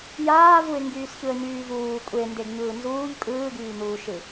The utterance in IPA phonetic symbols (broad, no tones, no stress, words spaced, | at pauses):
jaːvuɪ̯ ŋɡyːsçɯə̯ɲyːvuː kʷʼe ndeɡɲɯːnzuːʎ kʼɯːɡyːn̪uːʃɯ